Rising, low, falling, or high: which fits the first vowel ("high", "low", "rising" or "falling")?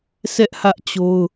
high